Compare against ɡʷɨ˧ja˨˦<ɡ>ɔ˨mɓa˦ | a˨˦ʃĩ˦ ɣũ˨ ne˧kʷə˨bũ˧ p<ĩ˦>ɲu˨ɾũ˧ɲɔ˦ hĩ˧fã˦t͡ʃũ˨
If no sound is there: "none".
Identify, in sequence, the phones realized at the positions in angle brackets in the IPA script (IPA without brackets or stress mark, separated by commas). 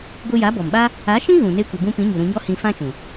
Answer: b, ĩ˨˦